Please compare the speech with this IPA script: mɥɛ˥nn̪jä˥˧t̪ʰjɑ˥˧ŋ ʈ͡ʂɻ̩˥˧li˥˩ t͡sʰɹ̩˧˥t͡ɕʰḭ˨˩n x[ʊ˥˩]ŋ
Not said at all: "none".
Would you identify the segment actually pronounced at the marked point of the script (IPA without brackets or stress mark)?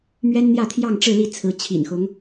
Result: ʊ˧˥